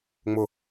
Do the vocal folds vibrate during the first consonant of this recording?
yes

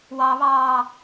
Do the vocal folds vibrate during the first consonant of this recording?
yes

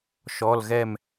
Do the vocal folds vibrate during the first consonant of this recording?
no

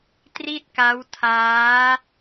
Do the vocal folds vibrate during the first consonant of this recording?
no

